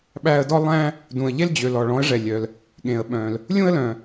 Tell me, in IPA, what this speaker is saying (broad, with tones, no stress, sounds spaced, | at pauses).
ɓ æ˧ ə̯ d ɔ˥ lˠ æ̃˥ | d ũ˩ ə̯ ʎ e˥ l d͡ʑ ø˩ l ɔ˩ ɭ ɔ̃˩˥ ə̯ ʐ ɛ˩ lʲ œ˩ l | ɠ ẽ˩ ə̯ ɓ œ̃˩ l | lʲ ũ˥ ə̯ l œ̃˩